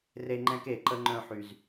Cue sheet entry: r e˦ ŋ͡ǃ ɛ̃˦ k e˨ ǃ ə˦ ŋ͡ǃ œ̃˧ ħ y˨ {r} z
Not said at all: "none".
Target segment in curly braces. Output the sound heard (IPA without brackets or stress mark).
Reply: none